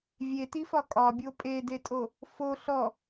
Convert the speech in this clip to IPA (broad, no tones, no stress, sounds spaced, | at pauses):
vʲ e t i f ɒ kʼ ɒ bʲ o pʼ e d e tʼ o | f o ɬ ɔ